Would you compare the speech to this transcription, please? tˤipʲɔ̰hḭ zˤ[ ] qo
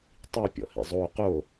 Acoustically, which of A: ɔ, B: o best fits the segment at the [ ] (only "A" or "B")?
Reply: B